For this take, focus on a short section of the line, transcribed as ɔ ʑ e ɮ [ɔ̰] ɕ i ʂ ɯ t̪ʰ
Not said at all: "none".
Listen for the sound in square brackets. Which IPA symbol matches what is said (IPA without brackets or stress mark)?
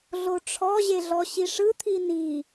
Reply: ɔ